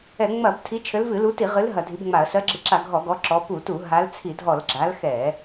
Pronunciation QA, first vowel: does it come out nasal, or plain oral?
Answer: oral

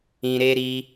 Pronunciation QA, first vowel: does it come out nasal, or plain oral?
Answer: nasal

